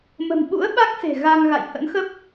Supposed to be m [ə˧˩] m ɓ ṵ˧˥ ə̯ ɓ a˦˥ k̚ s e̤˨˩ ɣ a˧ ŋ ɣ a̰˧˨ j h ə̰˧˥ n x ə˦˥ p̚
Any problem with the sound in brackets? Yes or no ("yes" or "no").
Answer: yes